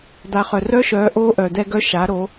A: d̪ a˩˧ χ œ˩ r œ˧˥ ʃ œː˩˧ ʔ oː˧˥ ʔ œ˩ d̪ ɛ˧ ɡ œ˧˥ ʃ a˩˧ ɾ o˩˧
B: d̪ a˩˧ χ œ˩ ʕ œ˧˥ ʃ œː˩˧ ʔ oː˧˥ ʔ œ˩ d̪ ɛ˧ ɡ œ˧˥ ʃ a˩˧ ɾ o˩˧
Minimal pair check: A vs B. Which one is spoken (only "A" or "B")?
A